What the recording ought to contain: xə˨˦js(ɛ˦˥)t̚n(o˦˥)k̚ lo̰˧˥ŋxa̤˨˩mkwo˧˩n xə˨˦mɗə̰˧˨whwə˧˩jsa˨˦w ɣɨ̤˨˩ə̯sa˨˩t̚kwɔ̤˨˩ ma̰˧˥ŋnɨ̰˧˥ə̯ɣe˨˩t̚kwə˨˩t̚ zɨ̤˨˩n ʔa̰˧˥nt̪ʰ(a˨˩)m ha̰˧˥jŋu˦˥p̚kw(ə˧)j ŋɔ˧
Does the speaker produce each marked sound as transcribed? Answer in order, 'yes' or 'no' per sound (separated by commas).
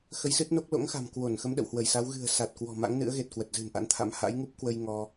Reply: no, yes, no, yes